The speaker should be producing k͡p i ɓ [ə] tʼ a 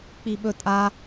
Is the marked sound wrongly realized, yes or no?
yes